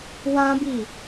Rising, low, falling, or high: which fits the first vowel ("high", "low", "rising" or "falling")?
high